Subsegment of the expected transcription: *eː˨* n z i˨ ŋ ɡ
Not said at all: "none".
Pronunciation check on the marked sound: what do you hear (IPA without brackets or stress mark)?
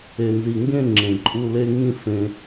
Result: e˨